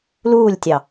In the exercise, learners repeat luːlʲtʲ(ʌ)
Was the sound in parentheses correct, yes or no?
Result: no